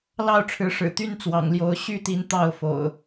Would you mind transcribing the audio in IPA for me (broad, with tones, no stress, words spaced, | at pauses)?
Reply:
lɑ˥˨ʊ̯ʈ͡ʂʰɻ̩˨˦ʂɻ̩˨˩t̪y˦n t͡swɑ̰˨˩ŋljo˨˦ʊ̯ ɕy˦t̪i˨˦n t̪ɑ˥˨ʊ̯ fo̰˨˩ʊ̯